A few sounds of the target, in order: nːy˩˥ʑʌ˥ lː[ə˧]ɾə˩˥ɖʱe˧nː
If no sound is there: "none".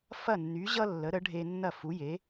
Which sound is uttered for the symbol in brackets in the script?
ə˩˥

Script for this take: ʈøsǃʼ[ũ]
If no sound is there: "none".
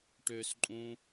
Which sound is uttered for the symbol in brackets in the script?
ũ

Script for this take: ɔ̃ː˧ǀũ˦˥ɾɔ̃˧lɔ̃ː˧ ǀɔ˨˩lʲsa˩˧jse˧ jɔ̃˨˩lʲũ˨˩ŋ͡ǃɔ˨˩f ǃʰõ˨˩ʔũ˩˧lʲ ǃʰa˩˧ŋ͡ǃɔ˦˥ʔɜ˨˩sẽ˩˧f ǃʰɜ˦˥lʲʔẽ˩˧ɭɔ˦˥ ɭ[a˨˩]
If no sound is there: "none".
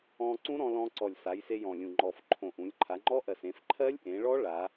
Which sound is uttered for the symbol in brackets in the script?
a˩˧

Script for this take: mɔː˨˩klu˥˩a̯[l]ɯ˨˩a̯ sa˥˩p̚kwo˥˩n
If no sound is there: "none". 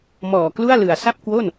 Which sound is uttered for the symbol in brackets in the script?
l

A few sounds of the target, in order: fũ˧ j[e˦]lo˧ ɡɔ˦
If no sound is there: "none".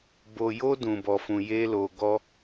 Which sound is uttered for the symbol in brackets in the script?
e˦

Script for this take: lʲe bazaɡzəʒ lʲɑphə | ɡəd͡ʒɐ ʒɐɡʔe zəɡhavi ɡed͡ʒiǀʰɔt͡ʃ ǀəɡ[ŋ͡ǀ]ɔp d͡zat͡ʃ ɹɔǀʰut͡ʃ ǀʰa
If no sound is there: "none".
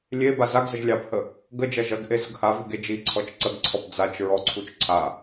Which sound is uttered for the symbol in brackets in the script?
ǀʰ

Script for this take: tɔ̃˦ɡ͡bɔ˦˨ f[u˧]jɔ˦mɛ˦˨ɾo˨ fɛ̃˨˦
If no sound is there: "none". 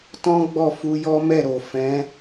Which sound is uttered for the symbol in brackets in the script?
u˧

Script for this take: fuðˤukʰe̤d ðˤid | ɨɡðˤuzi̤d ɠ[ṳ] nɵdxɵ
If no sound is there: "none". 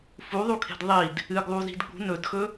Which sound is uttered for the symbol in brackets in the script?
ṳ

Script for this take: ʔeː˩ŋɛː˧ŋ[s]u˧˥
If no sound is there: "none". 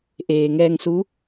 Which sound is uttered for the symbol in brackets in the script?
s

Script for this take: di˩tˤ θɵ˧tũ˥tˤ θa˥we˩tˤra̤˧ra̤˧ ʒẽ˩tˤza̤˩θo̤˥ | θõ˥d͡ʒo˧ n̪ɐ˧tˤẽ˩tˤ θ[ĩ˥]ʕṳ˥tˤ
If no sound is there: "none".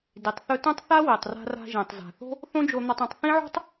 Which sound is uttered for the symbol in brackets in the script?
ĩ˥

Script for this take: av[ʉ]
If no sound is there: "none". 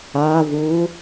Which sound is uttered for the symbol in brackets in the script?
u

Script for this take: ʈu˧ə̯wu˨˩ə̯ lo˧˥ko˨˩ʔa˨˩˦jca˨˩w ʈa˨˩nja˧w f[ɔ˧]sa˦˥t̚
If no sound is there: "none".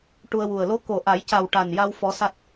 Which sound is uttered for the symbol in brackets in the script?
ɔ˧˥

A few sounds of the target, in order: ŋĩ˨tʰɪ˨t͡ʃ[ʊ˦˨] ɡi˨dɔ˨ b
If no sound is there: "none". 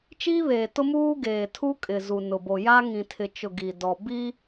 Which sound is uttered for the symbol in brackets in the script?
ʊ˨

